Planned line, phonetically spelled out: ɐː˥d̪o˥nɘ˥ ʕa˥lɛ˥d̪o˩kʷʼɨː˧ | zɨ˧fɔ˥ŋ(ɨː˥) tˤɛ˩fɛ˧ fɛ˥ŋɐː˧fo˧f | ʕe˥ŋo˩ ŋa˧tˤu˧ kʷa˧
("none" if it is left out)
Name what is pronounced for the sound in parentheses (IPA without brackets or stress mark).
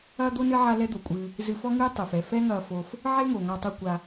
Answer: ɨː˥